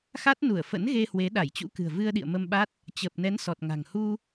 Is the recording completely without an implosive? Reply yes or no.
no